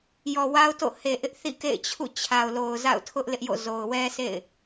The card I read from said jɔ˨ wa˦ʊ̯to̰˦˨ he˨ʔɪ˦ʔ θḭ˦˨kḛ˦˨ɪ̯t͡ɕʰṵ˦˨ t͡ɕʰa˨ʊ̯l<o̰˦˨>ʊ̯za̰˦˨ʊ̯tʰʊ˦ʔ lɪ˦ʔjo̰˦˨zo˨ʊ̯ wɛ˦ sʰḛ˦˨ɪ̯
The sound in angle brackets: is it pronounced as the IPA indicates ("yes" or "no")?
no